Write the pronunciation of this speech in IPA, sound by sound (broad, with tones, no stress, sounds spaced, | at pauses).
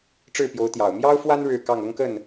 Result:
ʈ͡ʂ ɻ̩˥˩ p j o˧˥ ʊ̯ t̪ j ɑ˨˩ ʊ̯ m j ɑ˥ ʊ̯ f w a˥ n ɻ ɻ̩˥˧ k ɑ˥˩ ŋ ʊ˥ ŋ k ə˥˩ n